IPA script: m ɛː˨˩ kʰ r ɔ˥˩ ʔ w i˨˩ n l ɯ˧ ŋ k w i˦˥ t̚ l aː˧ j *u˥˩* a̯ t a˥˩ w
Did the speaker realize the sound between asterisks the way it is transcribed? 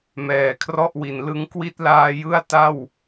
no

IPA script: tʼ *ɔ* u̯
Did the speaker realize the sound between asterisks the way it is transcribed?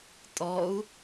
yes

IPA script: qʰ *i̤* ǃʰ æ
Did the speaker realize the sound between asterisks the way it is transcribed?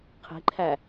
yes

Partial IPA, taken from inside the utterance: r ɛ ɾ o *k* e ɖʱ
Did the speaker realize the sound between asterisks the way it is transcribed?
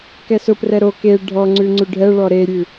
yes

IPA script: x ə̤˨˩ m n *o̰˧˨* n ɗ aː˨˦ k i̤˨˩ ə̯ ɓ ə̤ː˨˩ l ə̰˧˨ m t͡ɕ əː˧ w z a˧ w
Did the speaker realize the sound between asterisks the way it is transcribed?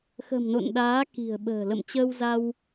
yes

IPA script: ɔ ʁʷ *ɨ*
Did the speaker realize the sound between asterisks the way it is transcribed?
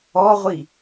no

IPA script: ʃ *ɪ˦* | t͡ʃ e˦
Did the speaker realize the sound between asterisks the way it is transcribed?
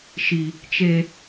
no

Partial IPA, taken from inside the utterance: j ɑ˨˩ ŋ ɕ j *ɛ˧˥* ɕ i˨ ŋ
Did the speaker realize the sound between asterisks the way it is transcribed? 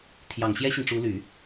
no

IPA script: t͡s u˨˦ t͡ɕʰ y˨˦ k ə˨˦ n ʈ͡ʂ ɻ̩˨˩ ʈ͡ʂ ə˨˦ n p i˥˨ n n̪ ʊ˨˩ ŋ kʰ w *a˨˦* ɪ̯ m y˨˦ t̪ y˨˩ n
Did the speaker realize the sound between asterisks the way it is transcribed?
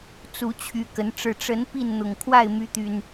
no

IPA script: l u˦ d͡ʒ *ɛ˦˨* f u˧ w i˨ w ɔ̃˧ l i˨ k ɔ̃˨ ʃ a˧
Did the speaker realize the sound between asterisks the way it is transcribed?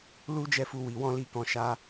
yes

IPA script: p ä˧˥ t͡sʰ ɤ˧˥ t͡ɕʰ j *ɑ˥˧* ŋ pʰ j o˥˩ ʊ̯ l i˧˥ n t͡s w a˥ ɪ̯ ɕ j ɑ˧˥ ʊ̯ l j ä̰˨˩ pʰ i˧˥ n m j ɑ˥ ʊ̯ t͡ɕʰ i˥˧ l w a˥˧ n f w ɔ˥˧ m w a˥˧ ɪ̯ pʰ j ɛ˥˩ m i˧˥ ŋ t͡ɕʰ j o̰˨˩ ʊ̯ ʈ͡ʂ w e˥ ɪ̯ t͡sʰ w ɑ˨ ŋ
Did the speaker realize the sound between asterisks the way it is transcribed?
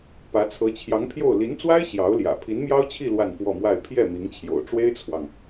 no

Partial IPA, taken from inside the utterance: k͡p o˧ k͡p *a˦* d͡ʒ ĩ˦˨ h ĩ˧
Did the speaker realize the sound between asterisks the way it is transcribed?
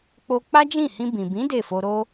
yes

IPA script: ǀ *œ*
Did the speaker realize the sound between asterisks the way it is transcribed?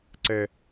no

